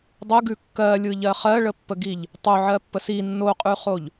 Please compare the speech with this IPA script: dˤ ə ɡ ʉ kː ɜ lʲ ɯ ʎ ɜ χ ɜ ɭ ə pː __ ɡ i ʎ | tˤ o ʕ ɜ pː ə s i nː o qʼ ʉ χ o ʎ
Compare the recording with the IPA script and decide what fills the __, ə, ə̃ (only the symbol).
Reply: ə